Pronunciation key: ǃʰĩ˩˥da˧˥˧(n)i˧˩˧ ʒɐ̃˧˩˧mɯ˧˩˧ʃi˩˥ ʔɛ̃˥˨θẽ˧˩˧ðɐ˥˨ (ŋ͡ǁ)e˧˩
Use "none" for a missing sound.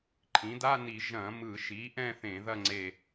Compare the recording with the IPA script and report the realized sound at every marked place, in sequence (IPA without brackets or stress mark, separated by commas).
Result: n, ŋ͡ǀ